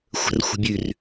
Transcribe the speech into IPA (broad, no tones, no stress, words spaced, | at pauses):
xʷə̤r xʷə̤bʲʉr